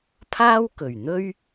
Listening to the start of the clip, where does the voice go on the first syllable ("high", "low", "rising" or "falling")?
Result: high